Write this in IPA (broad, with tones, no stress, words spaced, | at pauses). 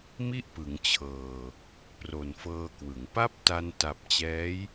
mi˥˩ʔpɯ˩˦ŋt͡ɕʰɤː˨˩ | pro˨˩nfɤː˧kwɯ˩˦ŋ pa˦˥p̚ ta˧n ta˨˩p̚t͡ɕɛː˦˥j